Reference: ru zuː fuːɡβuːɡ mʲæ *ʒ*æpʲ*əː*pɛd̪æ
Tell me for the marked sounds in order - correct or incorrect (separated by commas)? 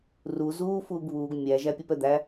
correct, incorrect